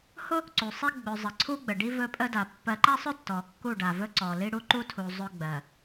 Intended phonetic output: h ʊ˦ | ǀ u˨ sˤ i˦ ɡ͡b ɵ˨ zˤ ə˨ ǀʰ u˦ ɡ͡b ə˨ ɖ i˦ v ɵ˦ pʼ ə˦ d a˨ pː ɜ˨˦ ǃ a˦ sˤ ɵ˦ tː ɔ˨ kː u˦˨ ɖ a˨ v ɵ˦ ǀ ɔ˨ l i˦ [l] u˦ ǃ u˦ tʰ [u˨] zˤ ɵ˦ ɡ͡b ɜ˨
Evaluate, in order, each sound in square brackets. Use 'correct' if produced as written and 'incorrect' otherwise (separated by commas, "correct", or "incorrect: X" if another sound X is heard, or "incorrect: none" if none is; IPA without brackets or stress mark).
incorrect: ɽ, correct